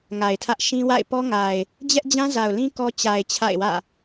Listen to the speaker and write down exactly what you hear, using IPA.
ŋ a˨ ɪ̯ tʰ ä˦ ʔ ʃ ĩ˦ w a̰˦˨ ɪ̯ p ɔ˦ ŋ a˨ ɪ̯ | d͡ʑ ɛ˦ ʔ d͡ʑ ã˦ z a˨ ʊ̯ l ĩ˦ k ɔ˦ t͡ɕ a˨ ɪ̯ t͡ɕʰ a̰˦˨ ɪ̯ w ä̰˦˨

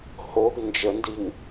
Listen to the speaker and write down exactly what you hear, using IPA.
h o ɡ n d͡ʒ ə n d i ŋ

